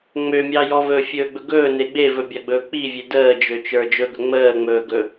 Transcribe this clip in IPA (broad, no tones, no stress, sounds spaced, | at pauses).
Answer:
ŋ͡m ø mʲ ɑ j ɔ v ɵː fʲ ɵː ɡ͡b ɵ ɡ ɵː n e ɡ͡b e v ɵ bʲ ɑ ɡ͡b ɵː k͡p i vʲ e d əː d͡ʒ ø t͡ʃ ə˞ d͡ʒ ɵ ɡ ɵ ŋ͡m əː ŋ͡m ɵː ɡ ɵ